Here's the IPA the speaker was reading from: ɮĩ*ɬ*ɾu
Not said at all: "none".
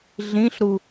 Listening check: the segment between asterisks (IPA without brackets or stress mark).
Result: ɬ